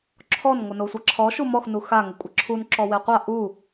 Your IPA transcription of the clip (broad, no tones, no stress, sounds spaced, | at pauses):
ǁʰ ɔ n ŋʷ ə n o sʷ a ǁʰ ɔ ʃ u m ɔ x n u x a ŋ ə kʷʼ ə ǁʰ u n ǁ ɔ w e qʷ a ʔ u